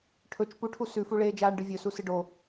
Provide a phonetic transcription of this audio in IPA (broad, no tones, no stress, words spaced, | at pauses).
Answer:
ʈʰɵt͡ʃ puʈʰu sʉfu ɭeːd͡ʒaːɳɖɨvʲɵ susɨɖo